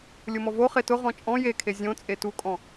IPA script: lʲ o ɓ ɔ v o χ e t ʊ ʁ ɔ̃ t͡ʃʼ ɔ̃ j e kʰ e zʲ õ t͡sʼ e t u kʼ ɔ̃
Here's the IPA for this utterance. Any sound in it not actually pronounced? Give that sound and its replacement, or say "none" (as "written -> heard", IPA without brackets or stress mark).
ɓ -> m